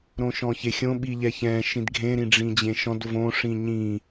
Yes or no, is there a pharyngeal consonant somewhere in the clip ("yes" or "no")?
no